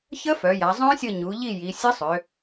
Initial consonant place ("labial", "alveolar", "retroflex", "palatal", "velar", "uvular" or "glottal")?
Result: palatal